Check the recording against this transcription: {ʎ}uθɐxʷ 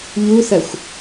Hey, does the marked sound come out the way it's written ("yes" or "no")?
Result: yes